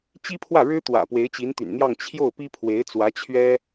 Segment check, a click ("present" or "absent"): absent